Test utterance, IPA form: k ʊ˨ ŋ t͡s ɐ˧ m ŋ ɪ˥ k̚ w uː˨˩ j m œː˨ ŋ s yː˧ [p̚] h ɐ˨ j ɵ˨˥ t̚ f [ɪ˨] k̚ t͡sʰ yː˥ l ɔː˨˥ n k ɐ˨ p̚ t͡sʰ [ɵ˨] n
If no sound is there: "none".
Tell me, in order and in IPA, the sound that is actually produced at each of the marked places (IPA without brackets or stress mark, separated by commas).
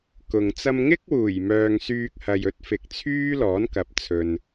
k̚, ɪ˨, ɵ˨